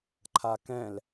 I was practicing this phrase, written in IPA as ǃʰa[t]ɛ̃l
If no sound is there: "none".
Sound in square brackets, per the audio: k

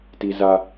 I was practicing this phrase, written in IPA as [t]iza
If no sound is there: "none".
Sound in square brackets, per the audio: t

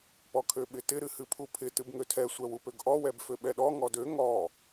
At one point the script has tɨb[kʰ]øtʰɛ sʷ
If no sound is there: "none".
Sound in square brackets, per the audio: ŋ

